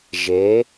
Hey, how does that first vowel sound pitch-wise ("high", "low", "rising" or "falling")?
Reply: rising